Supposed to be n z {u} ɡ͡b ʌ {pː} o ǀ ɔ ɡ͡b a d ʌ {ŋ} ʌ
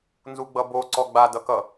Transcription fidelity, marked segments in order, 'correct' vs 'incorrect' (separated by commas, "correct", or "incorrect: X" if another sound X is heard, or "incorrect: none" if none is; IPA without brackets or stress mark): correct, incorrect: b, incorrect: k